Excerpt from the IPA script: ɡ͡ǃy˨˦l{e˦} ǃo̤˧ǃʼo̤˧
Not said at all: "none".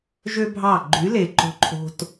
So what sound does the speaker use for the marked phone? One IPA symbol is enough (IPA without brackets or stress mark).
e˨